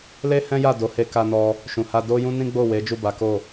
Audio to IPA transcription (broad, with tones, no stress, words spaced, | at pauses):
le˦hɛ̃˦ja˦˨ do˨˦he˧ ka˧nɔ˧ | ʃũ˨ha˧ do˦jũ˦nĩ˦ ɡ͡bo˦˨we˨˦ d͡ʒu˦˨ba˨˦ko˦˨